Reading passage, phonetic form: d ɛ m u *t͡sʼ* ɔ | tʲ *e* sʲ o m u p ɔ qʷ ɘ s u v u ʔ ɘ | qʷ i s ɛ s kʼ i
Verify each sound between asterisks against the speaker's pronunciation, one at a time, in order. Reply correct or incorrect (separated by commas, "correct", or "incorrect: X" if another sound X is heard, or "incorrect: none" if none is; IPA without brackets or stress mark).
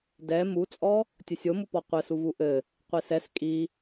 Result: correct, incorrect: ɘ